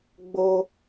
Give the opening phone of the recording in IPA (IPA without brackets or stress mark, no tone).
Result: ɡ͡b